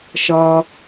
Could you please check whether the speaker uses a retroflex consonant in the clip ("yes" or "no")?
no